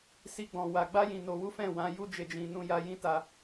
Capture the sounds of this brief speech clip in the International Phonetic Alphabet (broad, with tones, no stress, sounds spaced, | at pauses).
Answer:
s i˧ ɡ͡b ɔ̃˨ w a˨ ɡ͡b a˧ j ĩ˨ n o˨ w u˨˦ f ɛ̃˦˨ w ã˨˦ j u˧ d͡ʒ e˨ d͡ʒ ĩ˨ n ũ˧ j a˧ j ĩ˦ t a˧